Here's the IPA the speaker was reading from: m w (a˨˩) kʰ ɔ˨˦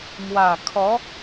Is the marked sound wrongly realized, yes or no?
no